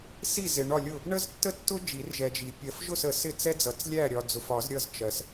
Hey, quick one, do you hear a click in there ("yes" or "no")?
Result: no